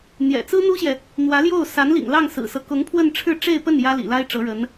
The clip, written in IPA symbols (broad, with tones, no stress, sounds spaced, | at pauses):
n̪ j ɛ̰˨˩ t͡s ɹ̩˥ n̪ u˥ ɕ j ɛ˨ | n̪ w ä˧˥ l j o˥˩ ʊ̯ s a˧˥ n l ḭ˨˩ ŋ l ɑ˥˩ ŋ s ɹ̩˨˩ s ɤ˦ k ʊ˧˥ ŋ pʰ w ə˥˧ n ʈ͡ʂʰ ɻ̩˥˧ ʈ͡ʂ e˥˧ ɪ̯ p ə˥˩ n j ä˥ l ḭ˨˩ l a˥ ɪ̯ ʈ͡ʂ ɤ˧˥ ɻ ə˧˥ n